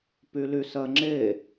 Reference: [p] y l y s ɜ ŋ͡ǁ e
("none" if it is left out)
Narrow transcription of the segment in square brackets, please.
p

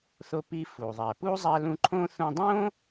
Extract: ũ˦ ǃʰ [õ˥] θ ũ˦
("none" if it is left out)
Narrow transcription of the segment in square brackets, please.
õ˥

